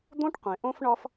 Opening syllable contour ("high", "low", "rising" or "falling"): high